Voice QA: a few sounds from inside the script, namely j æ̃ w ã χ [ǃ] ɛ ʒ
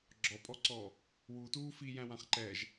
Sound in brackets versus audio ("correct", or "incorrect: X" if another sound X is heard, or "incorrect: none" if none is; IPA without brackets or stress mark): correct